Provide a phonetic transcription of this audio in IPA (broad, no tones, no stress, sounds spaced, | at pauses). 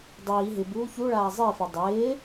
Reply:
dˤ iː ɦ ɪ b uː ç u ɭ aː zˤ ɪː f e dˤ ɪː